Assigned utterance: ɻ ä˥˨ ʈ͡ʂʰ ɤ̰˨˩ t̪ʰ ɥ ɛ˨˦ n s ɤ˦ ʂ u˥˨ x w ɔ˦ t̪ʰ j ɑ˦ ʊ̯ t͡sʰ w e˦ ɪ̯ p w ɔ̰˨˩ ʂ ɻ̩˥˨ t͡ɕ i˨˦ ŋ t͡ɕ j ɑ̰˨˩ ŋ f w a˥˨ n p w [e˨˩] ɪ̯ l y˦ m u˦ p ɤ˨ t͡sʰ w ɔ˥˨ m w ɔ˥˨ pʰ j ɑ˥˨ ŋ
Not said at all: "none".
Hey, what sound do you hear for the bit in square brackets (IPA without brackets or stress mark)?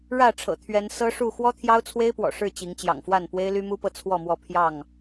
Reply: e˦